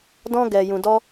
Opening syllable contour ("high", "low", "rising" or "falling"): high